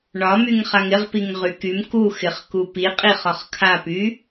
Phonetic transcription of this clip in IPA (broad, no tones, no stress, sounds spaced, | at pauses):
ɳ ɒ m y ŋ χ a ŋ ɪ ʁ p i ŋ ʁ y k y m k u x ɪ χ k u p i qʼ i χ ɒ χ kʰ a p y